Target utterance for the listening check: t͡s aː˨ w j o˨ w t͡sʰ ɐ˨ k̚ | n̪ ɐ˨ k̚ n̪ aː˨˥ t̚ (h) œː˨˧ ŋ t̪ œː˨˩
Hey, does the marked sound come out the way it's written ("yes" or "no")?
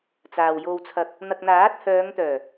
yes